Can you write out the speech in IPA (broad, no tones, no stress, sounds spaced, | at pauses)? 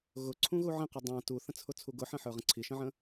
ɣ ʊ ǀʰ ũ ɣ u ʕ ə̃ q u dˤ æ̃ t u θ ə̃ t͡sʰ ʊ t͡sʰ u ɡ ʊ ħ ə̃ ħ ə˞ ʁ ə̃ ǀʰ i ʃ ə̃ ʕ ə̃